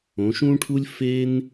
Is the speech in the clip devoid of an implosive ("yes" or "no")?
yes